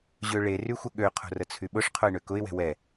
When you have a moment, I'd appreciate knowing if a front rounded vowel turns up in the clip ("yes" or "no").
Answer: yes